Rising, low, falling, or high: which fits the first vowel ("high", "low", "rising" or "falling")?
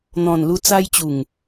low